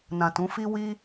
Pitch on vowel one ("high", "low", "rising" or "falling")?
low